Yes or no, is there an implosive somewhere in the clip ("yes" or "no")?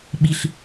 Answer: yes